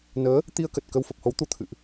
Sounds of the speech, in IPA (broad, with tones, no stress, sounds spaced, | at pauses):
n əː˨˦ | t̪ i˧ ə̯ k ə˨˩ t̚ k ə˧ w f ə˨˩ p̚ h o˨˦ w t̪ u˧ t̪ʰ ɨ̰˧˨ ʔ